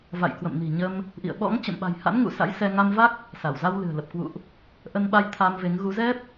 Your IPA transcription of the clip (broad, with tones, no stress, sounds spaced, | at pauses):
v a̰˧˨ j k w ə̰˧˨ m n i̤˨˩ ɲ ə˧ m | ʔ ḭ˧˨ ə̯ ɓ ɔ̰˧˥ ŋ t͡ɕ ə̰˧˨ m ɓ a̤˨˩ j h a̰˧˥ n ŋ ṵ˧˨ s a̰˧˥ j s ɛ˧ ŋ a˧ m v a˦˥ k̚ | s a˧˩ w z a˧ w l ɨ̤˨˩ ə̯ l ə˨˩ p̚ k w ṵ˧˨ ʔ | ʔ ə˧ n ɓ a˧ j t̪ʰ a˧ m v e˨˦ ŋ ɣ u˨˦ z ɛ˦˥ p̚